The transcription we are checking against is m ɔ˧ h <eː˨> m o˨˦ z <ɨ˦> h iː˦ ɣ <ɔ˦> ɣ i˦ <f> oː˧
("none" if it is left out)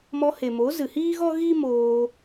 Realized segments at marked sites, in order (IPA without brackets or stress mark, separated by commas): e˨, ɨ˨, ɔ˦, m